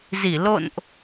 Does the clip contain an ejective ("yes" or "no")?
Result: no